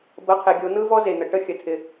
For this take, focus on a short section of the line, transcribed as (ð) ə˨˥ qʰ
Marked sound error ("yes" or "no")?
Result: yes